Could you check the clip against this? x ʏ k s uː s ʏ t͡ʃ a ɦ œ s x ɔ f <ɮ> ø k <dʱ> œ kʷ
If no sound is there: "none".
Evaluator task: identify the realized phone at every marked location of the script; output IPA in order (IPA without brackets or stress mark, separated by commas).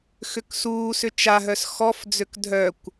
d͡z, dʱ